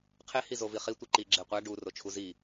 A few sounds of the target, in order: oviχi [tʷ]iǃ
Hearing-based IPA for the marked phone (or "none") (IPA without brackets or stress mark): tʷ